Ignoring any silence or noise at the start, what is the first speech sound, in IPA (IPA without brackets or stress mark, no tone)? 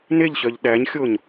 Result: n